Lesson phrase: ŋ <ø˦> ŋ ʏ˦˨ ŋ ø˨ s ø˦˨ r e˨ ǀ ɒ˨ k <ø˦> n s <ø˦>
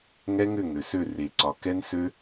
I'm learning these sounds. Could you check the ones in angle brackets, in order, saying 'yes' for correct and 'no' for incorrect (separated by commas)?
no, no, yes